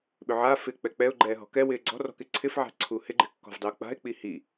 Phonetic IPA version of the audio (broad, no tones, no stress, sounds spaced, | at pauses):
ɓ ʏ ʕ aː f ɪː k͡p ɛ k͡p ɛ ʊ̯ ɡ͡ǃ ɛː ɦ ɔ̤ k ɛ w ɪː ɡ͡ǀ ɔ̤ r ɔ̤ k ɪ ǀʰ ɪ f ʕ a̤ ǀʰ u h ɪ ɡ͡ǃ ɪ kː ɔ̤ v dˤ ɪ ʊ̯ k͡p a̤ ɪ̯ k͡p i h i